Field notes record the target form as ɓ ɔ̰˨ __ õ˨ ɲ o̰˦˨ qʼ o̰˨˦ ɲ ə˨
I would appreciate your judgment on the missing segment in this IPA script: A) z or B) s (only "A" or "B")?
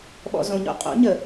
A